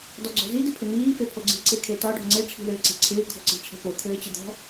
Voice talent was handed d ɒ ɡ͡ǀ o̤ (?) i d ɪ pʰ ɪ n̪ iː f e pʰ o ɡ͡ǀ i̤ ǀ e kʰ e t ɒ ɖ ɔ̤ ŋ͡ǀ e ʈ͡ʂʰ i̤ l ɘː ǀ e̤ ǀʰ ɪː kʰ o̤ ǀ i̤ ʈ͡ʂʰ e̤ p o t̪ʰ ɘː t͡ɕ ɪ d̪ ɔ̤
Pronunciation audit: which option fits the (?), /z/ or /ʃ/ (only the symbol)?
z